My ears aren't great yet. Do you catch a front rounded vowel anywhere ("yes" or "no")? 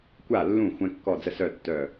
yes